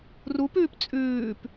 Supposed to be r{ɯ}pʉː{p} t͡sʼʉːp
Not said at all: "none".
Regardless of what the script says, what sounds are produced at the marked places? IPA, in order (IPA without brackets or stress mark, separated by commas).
u, p